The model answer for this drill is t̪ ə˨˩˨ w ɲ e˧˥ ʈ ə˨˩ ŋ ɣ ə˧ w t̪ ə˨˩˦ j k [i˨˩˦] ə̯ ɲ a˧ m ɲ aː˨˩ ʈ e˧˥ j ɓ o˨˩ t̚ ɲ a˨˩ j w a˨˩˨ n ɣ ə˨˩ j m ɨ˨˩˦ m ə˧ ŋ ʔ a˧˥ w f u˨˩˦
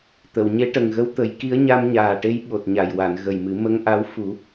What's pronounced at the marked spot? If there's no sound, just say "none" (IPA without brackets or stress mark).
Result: i˧˥